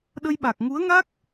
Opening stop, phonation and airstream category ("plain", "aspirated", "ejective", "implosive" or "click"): implosive